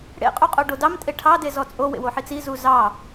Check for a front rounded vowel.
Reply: absent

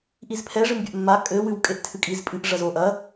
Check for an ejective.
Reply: present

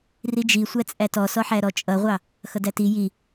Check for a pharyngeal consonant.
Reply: present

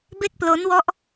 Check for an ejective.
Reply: absent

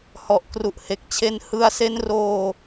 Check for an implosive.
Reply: absent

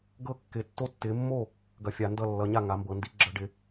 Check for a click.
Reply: present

